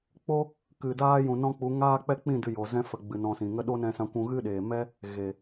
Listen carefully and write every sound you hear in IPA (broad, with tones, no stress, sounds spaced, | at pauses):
k͡p o˦ | k ɨ˨ d aː˦ j ũ˨ n ɔ̃˦ k͡p u˨˦ ŋ aː˦ k͡p ɛ˦ k͡p ĩ˦˨ d ɨ˧ j o˨ z ɛ̃˦ f ə˨ ɡ͡b ɨ˨ n ɔ̃˧ s ĩ˨ ŋ ə˦ ɗ o˦ n ɛ̃˧ s ã˧ kʷ ũ˧ ɣ ɨ˦ ɗ eː˨ m ɛ˦ | ɣ e˨